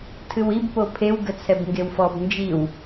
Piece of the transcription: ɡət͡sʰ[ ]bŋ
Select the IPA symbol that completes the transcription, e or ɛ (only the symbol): ɛ